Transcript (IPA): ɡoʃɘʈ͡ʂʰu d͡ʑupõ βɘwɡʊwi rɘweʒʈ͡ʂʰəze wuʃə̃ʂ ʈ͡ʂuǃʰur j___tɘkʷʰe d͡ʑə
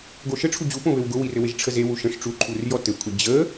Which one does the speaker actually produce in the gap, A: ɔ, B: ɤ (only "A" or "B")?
A